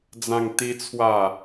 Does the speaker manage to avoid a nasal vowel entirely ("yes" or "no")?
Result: no